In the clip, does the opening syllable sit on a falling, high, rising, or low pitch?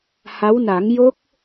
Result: rising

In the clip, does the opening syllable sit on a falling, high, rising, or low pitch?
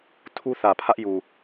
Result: high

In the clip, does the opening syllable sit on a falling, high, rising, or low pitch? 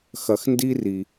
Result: low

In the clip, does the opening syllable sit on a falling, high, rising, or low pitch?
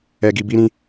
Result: low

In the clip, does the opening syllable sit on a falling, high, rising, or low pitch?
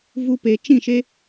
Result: high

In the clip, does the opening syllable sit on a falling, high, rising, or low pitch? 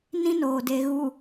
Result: high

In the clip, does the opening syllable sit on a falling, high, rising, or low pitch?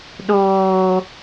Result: high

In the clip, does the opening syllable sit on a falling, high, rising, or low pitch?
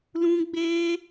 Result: high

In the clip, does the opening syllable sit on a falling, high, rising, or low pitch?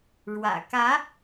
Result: low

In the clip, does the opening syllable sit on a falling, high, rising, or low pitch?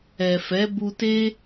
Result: low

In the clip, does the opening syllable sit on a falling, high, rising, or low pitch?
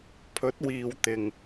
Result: rising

